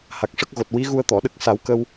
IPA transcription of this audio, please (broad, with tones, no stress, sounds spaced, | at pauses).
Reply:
h a˨˩ k̚ ʂ ə˦˥ k̚ ɣ o˨˩ t̚ w i˧˥ ɣ u˧ ə̯ t̪ ɔ˨˩˨ ɗ ə˦˥ k̚ s a˨˩˦ w k ə˧ w